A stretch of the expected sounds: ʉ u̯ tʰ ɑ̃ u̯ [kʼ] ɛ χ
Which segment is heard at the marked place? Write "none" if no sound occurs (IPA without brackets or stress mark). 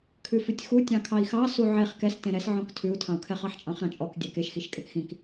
kʰ